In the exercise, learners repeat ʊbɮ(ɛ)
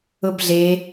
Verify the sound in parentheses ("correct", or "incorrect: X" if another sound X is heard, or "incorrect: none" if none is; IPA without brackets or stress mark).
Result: incorrect: e